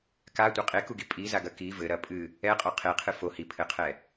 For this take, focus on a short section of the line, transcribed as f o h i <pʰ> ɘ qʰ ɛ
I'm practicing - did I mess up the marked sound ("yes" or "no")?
no